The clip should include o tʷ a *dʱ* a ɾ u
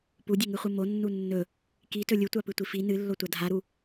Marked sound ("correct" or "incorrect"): correct